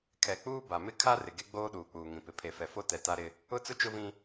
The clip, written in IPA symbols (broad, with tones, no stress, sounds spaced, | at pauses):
kʰ ɛ˨ k͡p uː˦ b a˨ m ɪ˦ kʰ a˦ r ɪ˨ ɡ e˦ ɡ͡b oː˦ ɗ uː˨ k͡p uː˨ ŋ ĩ˨ p ɪ˨ pʰ e˨ f ɛ˨ f o˦ t ɛ˨ t a˦ ɾ ɪ˦ | ʊ˦ t͡s ʊ˦ t͡ʃ ʊ˦ v ĩ˦